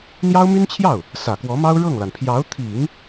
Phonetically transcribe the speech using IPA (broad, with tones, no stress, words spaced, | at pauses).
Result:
n̪jɑ˥ʊ̯my˥nt͡ɕʰjɑ˥˩ʊ̯ | sä˨˩kwɔ˧˥mɑ˥ʊ̯ ɻɤ˥˩ŋla˩n pʰjɑ˧˥ʊ̯t̪ʰi˨˩˦ŋ